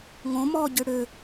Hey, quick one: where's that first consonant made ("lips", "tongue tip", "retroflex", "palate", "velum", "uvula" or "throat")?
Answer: velum